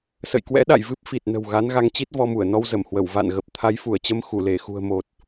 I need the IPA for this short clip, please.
s ə̰˧˨ j k w ɛ̰˧˥ ɗ a̰˧˨ j v ɨ˦˥ p̚ f i˨˩ t̚ n ə̤˨˩ w ɣ a˨˦ n ɣ a˧ ŋ t͡ɕ i˦˥ t̚ v ɔ˧ m u˧˩ ə̯ n ɔ˧ w z ə˧˩ m h w ə˧˩ w v a̰ː˧˨ n ɣ ə˨˩ p̚ t̪ʰ a˨˦ j f u˧˩ ə̯ t͡ɕ ə˧ m x u˧˩ l e˧˩ x ṳ˨˩ ə̯ m o˨˩ t̚

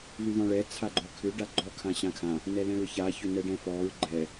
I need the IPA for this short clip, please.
l y ð ɔ̃ ɭ ɛ t͡sʰ a ɡ͡ǃ ɔ kʰ ʏ ɖ a ɡ͡ǃ ɔ kʰ ã ɕ ã kʰ ã | n ɛ l ɛ̃ ɹ ç a ç ʏ n ɛ ɖ ɛ̃ f ɔ ɹ ɡ͡ǃ ɛ

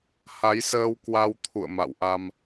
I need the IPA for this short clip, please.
h a˨˦ j s əː˧ w k w a˧ w t̪ʰ ṵ˧˨ ə̯ m a̰˧˨ w ʔ a˧ m

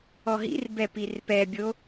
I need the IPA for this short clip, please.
ɔ ɦ ḭ r b ɛ p i r p ɛ bʲ o

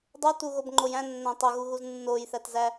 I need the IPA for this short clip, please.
dˤ u t u ɣ o b ŋ͡ǃ o j æ̃ nː æ̃ tˤ o ɣ u ɣ u z nː o j θ æ t z æ

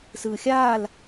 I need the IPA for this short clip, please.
s ɯː xʲ aː l

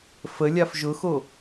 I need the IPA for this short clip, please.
f ə lʲ a f ʒ ʊ x o

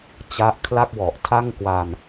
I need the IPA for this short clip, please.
t͡ɕ a˦˥ ʔ kʰ l a˥˩ k̚ w ɔ˨˩ ʔ tʰ a˥˩ ŋ k w a˧ n

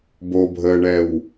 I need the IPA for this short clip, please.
b o bʱ əː ɳ ɛ w

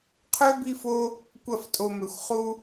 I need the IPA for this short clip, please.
qʰ ø˦ b i˦ f o˦ | kʷ ɐ˦˨ f tʼ o˧ m ø˧ xʷ χ u˦

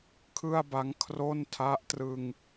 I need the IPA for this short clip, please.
kʰ ɯ˥˩ a̯ b a˦˥ ŋ kʰ r o˥˩ n tʰ a˦˥ ʔ t r ɯ˧ ŋ

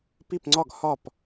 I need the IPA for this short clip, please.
p i˥˩ p ŋ͡ǀ ɒ˥˩ ɡ h ɒ˥˩ p

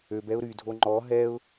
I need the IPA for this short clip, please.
ø b ɛ ʊ̯ ɾ y dʱ o ŋ͡ǃ ɔ ɦ ɛ ʊ̯

